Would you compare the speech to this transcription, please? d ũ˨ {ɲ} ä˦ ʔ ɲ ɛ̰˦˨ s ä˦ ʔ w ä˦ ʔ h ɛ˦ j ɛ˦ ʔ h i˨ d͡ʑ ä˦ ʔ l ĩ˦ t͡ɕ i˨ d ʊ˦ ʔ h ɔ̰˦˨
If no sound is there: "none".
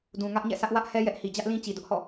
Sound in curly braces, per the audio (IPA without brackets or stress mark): ŋ